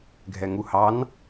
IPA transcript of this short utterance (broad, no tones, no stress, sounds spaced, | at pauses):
ɡʱ ɛ ŋ u h ɑ n